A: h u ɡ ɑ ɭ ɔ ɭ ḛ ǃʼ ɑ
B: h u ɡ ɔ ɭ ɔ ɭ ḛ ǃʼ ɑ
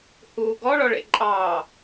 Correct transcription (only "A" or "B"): B